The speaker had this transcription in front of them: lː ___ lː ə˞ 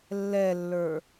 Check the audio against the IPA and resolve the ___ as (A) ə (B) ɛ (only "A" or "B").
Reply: B